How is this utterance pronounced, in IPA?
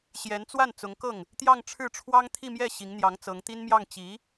ɕ j ɛ˧˥ n t͡s w a˥˩ n t͡s ʊ˧˥ ŋ k ɤ˥˩ ŋ | t̪ j ɑ˥˧ ŋ ʈ͡ʂʰ ɻ̩˥˩ ʈ͡ʂʰ w ɑ˥ ŋ t̪ʰ i˥˧ m j ɛ˥˩ ɕ i˧˥ ŋ n̪ j ɑ˧˥ ŋ t͡s ɤ˧˥ ŋ t̪ i˥ n m j ɑ˥˩ ŋ t͡ɕ i˧˥

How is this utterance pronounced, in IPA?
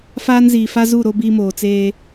f aː˦ n z iː˨ f a˦ z u˦˨ ɾ o˦ b iː˦ m oː˨ t͡s eː˦

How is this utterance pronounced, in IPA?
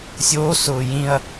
sʲ oː s ʊː j ĩ ɐ̯

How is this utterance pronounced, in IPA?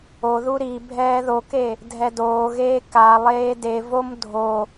o ð u ɾ i bʱ ɛː ð o k e | dʱ ɛ d oː ɣ eː k a lˠ eː d e v o m dʱ o

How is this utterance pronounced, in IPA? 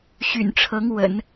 ɕ y̰˨˩ n ʈ͡ʂʰ ɤ˧˥ ŋ w ə̰˨˩˦ n

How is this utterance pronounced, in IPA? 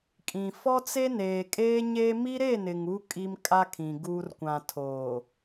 kʼ ĩ˨ f ɔ˦ t͡s e˦ n eː˨ kʼ eː˦ ɲ eː˦ m i˦ ɾ e˦˨ n ɪ˨ ŋ u˦ kʼ i˦ m kʼ a˦ kʰ ĩ˨ ɡ uː˦ r kʷ ã˨ tʰ oː˨

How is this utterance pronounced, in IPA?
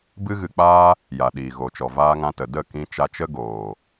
b ɨ˦ ɣ ɨ˧ k͡p aː˦ | j a˨ ɗ iː˨ ɣ o˨ t͡ʃ ɔ˨ v aː˧ ŋ ã˧ t ə˨ d ə˦˨ k ĩ˧ t͡ʃ a˧ t͡ʃ ə˦ ɡ oː˨

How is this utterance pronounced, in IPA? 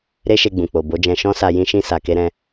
ɾ e˦ ʃ e˧ ɡ͡b ũ˨ k͡p o˨ b o˨˦ d͡ʒ ɛ̃˧ ʃ ɔ̃˦ s a˧ j ĩ˦ ʃ ĩ˦ s a˧ k e˦ ɾ ɛ̃˦

